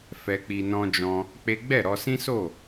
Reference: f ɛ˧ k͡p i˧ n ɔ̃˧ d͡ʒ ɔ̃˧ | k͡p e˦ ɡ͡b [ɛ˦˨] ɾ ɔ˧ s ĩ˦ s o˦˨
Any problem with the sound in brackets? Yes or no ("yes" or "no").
no